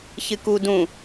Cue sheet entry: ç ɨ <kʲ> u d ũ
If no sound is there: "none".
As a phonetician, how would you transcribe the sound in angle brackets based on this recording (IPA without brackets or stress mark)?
k